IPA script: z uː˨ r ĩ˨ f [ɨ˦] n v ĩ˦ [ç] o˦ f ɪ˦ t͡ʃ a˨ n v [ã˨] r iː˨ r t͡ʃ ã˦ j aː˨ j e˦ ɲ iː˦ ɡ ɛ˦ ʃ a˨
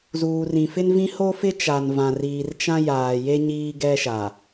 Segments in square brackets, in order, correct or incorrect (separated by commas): incorrect, incorrect, correct